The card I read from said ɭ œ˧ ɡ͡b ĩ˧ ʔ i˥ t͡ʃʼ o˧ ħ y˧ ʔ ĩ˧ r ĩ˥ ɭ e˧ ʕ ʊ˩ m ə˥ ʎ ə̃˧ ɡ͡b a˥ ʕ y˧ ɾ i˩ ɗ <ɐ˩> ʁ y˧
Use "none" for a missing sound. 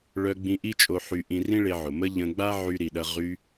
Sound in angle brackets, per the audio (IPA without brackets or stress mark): ɐ˧